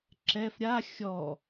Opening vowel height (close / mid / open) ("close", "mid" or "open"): mid